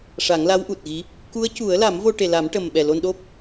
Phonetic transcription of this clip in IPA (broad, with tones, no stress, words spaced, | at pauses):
ʂa˨˩˦ŋla˧˥wʔu˨˩t̚ɣi˧˥ | ku˧˥ə̯cu˨˩˦ə̯la˨˩˦mvo˧ ʈe˨˩la˨˩˦mʈə˨˩mɓɛ˨˩ lo˧nɗo˦˥p̚